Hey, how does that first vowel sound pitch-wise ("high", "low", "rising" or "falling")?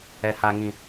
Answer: low